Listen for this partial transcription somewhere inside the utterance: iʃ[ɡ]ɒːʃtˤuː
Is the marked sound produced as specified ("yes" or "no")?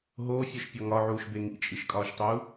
no